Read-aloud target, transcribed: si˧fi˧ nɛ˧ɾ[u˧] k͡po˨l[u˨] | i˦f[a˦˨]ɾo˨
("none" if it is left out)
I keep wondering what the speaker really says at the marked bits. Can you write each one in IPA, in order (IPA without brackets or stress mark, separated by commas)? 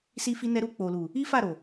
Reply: u˧, u˨, a˦˨